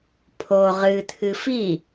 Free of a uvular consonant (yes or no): no